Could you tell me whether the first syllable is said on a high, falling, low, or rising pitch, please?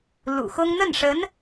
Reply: low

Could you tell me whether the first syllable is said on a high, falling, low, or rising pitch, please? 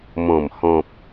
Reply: low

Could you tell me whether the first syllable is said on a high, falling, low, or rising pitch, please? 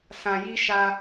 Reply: low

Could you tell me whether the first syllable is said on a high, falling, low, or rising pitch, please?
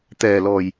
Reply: low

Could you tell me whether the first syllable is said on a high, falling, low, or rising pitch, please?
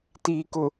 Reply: low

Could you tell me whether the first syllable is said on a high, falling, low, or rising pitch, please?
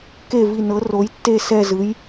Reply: falling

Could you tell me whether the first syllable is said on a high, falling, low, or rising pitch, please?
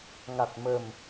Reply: low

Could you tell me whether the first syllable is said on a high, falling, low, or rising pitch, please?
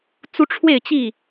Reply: high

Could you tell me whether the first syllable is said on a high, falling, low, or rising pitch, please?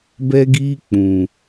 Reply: high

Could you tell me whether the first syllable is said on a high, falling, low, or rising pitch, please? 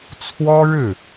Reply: high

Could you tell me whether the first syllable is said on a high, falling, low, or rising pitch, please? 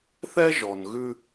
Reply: high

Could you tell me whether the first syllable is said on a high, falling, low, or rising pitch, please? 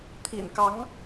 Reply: low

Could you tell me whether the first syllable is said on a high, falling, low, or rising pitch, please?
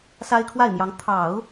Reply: high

